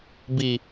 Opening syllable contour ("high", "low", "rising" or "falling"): falling